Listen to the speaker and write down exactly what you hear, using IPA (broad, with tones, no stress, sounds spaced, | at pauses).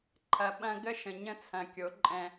ǃʰ ɐ˨ ɓ ɐ̃˦ ɡ ə˦ ʃ ə̃˨ ɲ ə̃˦ t͡sʰ ɐ̃˨ kʲ o˨˦ ǃʼ ɛ̃˦